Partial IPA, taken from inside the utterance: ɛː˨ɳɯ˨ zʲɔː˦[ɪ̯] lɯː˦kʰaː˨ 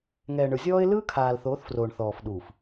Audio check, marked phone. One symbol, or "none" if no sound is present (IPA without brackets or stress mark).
ɪ̯